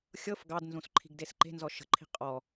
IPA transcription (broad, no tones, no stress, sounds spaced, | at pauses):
xʲ ɤ f ɡ ɑ d n z ũ s ǃʰ i̤ ɡ d e s ǃ e̤ n z ɔ ʃ ə̤ ǃʰ i̤ qʼ ɔ